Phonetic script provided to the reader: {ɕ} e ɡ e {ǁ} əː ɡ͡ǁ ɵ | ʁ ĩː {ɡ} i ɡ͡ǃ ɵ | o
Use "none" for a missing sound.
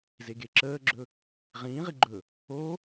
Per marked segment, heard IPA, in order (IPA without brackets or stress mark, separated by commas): z, ǁ, ʁ